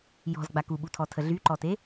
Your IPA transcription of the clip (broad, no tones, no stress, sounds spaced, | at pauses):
j ɔ̤ z ɡ͡b a k u ɓ u tʰ ɔ tʰ ə ɮ y ǃ ɔ t e